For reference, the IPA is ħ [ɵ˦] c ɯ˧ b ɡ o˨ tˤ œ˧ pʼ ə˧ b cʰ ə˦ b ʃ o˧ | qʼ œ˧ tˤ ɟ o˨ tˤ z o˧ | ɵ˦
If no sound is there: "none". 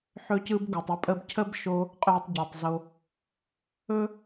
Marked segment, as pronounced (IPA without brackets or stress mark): ɵ˧